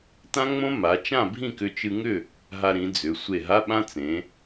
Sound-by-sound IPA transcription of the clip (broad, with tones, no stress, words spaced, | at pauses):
tã˦˥ŋ͡mõ˦˥ ma˩˧t͡ʃã˥˨ bʱĩ˥˨kʏ˧ t͡ʃɨ˧ŋʏ˥˨ | ɦa˧ɾĩ˩˧d͡zʏ˩˧ sʷe˧˩ɦa˧˥˧ɓã˦˥ t͡sẽ˩˧